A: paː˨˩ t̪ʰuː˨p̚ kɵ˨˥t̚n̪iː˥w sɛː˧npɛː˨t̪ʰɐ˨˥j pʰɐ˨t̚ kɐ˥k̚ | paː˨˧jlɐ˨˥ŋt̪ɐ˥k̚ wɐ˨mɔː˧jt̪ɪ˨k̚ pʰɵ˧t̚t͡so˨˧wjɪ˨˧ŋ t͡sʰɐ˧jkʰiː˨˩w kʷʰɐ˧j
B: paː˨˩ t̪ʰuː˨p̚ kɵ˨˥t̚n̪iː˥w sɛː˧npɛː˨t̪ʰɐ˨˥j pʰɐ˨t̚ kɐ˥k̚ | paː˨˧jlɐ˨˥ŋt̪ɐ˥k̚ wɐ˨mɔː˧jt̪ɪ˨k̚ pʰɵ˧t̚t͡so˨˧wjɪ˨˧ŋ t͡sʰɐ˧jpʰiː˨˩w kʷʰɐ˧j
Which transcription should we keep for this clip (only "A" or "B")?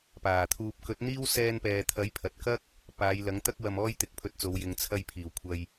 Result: B